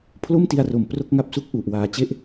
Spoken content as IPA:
pʰ l o˥˩ m t i˧ a̯ r o˨˩ m p r o˥˩ k̚ ŋ a˥˩ p̚ s u˥˩ k̚ ʔ u˨˩ ʔ w aː˨˩ t͡ɕ e˦˥ ʔ

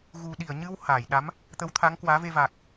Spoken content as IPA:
ɣ u˨˩ ɗ i˧˩ ə̯ ɲ ɨ˧ w h aː˧˩ j ɗ a˨˦ m | t̪ ə˨˦ w t̪ʰ a˨˦ ŋ k w aː˨˦ v e˧ v a˨˩ k̚

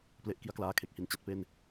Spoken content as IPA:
p l e˦˥ ʔ k i˦˥ a̯ k l aː˧ kʰ e˨˩ k̚ h i˧ n t͡ɕ a˦˥ t̚ p e˥˩ n

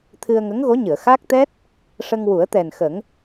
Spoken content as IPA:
t̪ʰ ɨ˧ ə̯ ŋ ə˧˥ ŋ ɣ o˧˥ ɲ ɨ˨˩˨ ə̯ x a˦˥ k̚ t̪ ɛ˦˥ t̚ | ʂ ə˧ ŋ w u˨˩˦ ə̯ t̪ ɛ˨˩ n x ə˨˩˦ ŋ

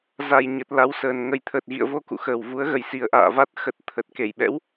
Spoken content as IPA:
z a˨˩ j ɲ ə˨˩ t̚ l a˨˦ w s əː˨˩ n ŋ ə˨˩ j t̪ʰ əː˨˩ t̚ ɣ ḭ˧˨ ə̯ v o˧ k ṵ˧˨ x əː˨˩ w v u˨˦ ə̯ ɣ ə˨˩ j s i˨˩ ə̯ ʔ a̰ː˧˨ v a˦˥ t̚ x ə˨˩ t̚ t̪ʰ ə˨˩ t̚ k e˧˩ j ɓ ɛ̰˧˥ w

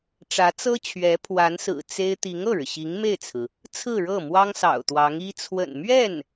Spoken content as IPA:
ʈ͡ʂ ä˧˥ t͡s ɤ˥ t͡ɕʰ ɥ ɛ˧˥ pʰ w a˧˥ n s ɹ̩˨˩ t͡s e˥ ɪ̯ t̪ i˧˥ ŋ ɤ˥˩ ɻ ɻ̩˩ ɕ i˧˥ ŋ m e˥˩ ɪ̯ t͡sʰ ɹ̩˩ | t͡sʰ ɹ̩˥˧ ɻ ɤ˥˩ m w ɑ˥ ŋ s ɑ̰˨˩ ʊ̯ t̪ w ɑ˧˥ ŋ i˥ t͡sʰ w ə̰˨˩ n m ɥ ɛ˥˩ n

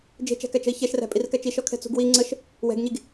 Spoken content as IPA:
d͡ʒ e̤ t͡ʃ æ̤ k æ t͡ʃ ə̤ i̯ ç ɛ ʃ r æ̤ pʼ i r k æ t͡ʃ i ʃ ɔ kʰ ɛ̤ t͡s ṳ ɡ w i ŋ͡ǀ ə ʃ | w ɛ̤ ɡ ɲ i ɡ

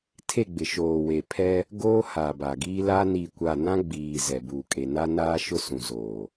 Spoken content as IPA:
tʰ e˦˨ ɡ͡b ɪ˨ ʃ oː˨ w e˨ pʰ ɛ˦ | ɡ oː˦ h a˨ b a˨ ɡ iː˦ l a˦ n i˦˨ kʷ a˦˨ n ã˦ ɡ͡b iː˨ z ɛ˨ b uː˨ kʼ e˨ n a˦ n aː˦ ʃ ʊ˦ s ũ˨ z oː˨

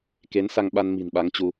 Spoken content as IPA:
k e˨˦ n s a˧ ŋ ɓ a˧ n m i̤˨˩ n ɓ a˨˦ ŋ t͡ɕ u˧

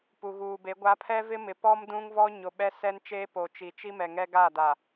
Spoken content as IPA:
p u˨ ɣ uː˨ b e˨˦ ɡʷ a˨˦ pʰ ɛ˦ v ɪ˦ m ɪ˨ p ɔ˦ m d ũ˦ ŋ v ɔ˦ ɲ o˨ ɓ ɛ˦ s ɛ˦ n t͡ʃ eː˦ p o˨ t͡ʃ i˨ t͡ʃ i˦ m ɛ˨ ŋ ɛ˦ ɡ aː˦˨ d a˨

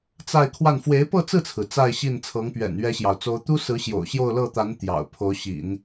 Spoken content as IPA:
t͡s a˥˧ ɪ̯ kʰ w a˥˩ n f w e˧˥ ɪ̯ p ɤ˥˧ t͡s ɹ̩˥˩ t͡sʰ ɹ̩˩ t͡s a˥˧ ɪ̯ ɕ i˥˩ n t͡sʰ ɤ˧˥ ŋ p ɥ ɛ̰˨˩ n ɥ ɛ˥ ɕ j ɑ˨ ʊ̯ t͡s o˥ ʊ̯ t̪ u˥ s ɹ̩˧˥ ɕ j o̰˨˩ ʊ̯ ɕ j o˥˧ ʊ̯ l ɤ˥˩ t̪ a˧˥ n t̪ j ɑ̰˨˩ ʊ̯ pʰ o˧˥ ʊ̯ ɕ ḭ˨˩˦ n

